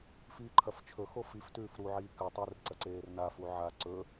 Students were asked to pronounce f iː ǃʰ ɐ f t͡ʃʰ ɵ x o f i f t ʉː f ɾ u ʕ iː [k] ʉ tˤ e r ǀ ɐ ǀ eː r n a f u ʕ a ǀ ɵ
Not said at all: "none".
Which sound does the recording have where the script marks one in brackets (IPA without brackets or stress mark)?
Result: k